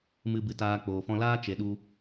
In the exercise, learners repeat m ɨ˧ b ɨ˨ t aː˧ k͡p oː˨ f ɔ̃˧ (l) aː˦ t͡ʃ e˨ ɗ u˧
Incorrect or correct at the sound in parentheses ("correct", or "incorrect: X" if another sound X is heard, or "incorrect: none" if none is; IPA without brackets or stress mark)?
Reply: correct